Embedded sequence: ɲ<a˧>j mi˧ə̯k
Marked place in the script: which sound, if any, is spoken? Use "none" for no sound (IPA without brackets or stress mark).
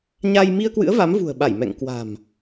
a˧